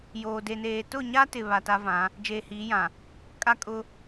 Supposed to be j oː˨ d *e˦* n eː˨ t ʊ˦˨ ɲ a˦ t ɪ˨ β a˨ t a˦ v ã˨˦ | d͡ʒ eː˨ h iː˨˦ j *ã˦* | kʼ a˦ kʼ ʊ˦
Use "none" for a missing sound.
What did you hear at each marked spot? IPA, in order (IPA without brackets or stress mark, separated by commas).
e˨, ã˨